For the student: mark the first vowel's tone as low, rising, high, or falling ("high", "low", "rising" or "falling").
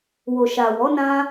low